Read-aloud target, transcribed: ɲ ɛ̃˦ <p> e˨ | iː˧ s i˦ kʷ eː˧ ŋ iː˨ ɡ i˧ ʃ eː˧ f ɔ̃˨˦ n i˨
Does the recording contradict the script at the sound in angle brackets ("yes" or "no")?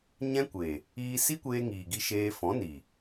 yes